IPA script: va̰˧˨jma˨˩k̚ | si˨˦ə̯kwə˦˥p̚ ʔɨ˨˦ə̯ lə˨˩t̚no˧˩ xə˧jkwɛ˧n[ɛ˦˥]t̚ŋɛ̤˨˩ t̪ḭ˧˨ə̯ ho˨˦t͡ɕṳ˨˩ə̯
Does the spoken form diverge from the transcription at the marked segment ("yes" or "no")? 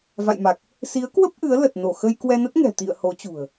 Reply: yes